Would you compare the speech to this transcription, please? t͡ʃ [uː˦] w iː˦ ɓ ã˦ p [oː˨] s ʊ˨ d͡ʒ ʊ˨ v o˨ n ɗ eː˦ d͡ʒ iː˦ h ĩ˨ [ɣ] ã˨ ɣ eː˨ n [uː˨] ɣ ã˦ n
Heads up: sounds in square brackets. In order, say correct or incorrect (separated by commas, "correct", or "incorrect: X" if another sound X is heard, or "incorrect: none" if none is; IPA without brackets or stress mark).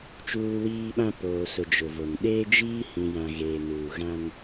correct, correct, incorrect: j, correct